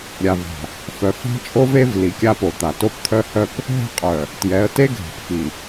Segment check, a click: absent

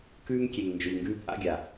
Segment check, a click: absent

